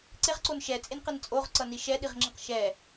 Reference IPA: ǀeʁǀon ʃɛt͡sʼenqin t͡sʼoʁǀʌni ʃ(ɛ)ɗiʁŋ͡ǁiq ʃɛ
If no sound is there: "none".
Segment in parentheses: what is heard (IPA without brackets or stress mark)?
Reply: ɛ